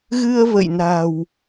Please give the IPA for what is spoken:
ɣ ɨ˧ ə̯ v ə̰˧˨ j n a̤˨˩ w

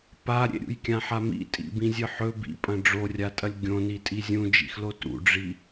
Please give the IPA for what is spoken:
p a ɾʲ ḛ ɾʲ ṵ j kʲ ã ħ a m ḭ tʼ ḭ b ĩ zʲ ɨ ħ ɵ b ḭ pʼ ɐ̃ ɖ͡ʐ o rʲ a tʼ ɐ lʲ ɡʲ õ n i tʼ i zʲ ũ d͡ʒ ḭ x l o t ṵ ɖ͡ʐ i

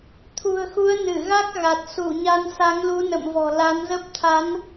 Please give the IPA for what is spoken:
t̪ʰ ṳ˨˩ ə̯ x u˨˦ ə̯ n ɨ˧˩ ɣ a˦˥ k̚ ɣ a˨˩ t̚ s u˧˩ ɲ a˧ n s a˨˦ ŋ l u˨˦ n ə̰˧˨ m v ɔ̤˨˩ l a˨˦ n z ə˦˥ p̚ t̪ʰ a˨˦ n

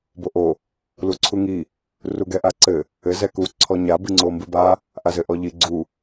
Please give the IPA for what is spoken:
b o ʔ o | l u ǀʰ u ŋ i | r u ɡ ɛ ʔ a ǀ ɘ | ɘ z ɛ k u ǀʰ ɔ ɲ a b ɨ ŋ͡ǀ o m b ɨ b a | ʔ a z ɘ ʔ ɔ ʎ i ɡ͡ǀ u

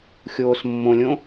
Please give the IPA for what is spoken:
xʲ oː s mː õ lʲ õ

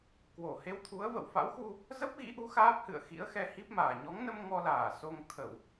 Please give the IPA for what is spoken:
k w o˧˩ h e˧ w t̪ʰ u˨˦ ə̯ v ə̰˧˨ w f a̰˧˥ w x u˧ | z ə˦˥ p̚ ɣ ḭ˧˥ ʔ u˨˦ x aː˦˥ p̚ h ɨ̰˧˨ ə̯ x ḭ˧˥ ə̯ x ɛ˧ h i˦˥ p̚ m aː˨˩ ɲ ɔ˨˦ ŋ n ə˧ m ŋ ɔ˧ l aː˧˩ s o˧ ŋ t̪ʰ ə˧˩˨ w

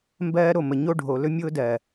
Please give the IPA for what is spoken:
m b ɜː˦ ɾ o˦˨ m ə˨ ɲ o˦ ɖʱ o˨ l ɵ˦ mʲ ʊː˦ d ɜ˨

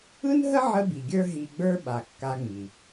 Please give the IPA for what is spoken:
ɯ˥ n ɦ ə˥ ʕ ə˧ b i˩ ɡʲ ə˞˧ ɦ i˧ ɡ͡b ə˞˥ ɓ a˩ kː a˧ ŋ͡m i˩

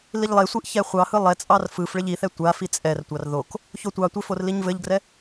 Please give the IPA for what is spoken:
l i ʎ lˠ e sʷ i ʔ ç ɛ χʷ ɑ h ɯ lˠ ɛ t͡sʼ ɑ r f ɯ f ɭ ɘ ʎ i θ ɛ tʷ a f i t͡sʼ ɛ r tʷ ɑ r ð o k | ç o tʷ ɑ tʷ e f o r l i ɲ v ɘ ʎ ɡ r ɛ

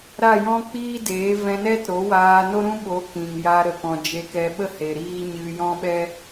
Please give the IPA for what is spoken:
ɾ a˦˨ j ɔ̃˦ k͡p iː˦ d eː˨˦ v ɛ̃˧ n ɛ˦ t ɾ o˨˦ w aː˧ n o˦ ɾ ũ˦ ɓ o˨˦ k ĩ˨ ŋ j a˧ ɾ ə˨ k ɔ̃˨ d͡ʒ e˧ k ɛ˧ ɓ ə˦ h e˨ ɾ iː˦ ɲ ɨ˧ j ɔ̃˦ ɓ ɛ˦

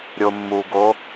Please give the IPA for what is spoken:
ɾʲ o mː u ɡ o

